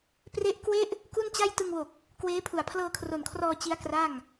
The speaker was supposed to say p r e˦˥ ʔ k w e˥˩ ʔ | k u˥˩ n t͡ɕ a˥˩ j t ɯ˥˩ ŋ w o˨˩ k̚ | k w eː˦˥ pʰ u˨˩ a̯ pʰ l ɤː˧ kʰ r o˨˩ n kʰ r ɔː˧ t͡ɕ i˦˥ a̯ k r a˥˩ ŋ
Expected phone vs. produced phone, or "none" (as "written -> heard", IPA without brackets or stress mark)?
ɯ˥˩ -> ɯ˧